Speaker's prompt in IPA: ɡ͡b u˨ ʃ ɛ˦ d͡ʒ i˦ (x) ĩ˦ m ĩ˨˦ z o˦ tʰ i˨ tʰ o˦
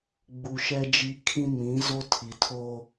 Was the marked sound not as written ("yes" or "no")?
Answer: yes